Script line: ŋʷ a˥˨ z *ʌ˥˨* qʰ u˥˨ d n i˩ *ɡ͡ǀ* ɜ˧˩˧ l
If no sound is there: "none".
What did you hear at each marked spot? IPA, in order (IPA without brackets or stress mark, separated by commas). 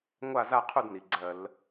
a˥˨, ɡ͡ǀ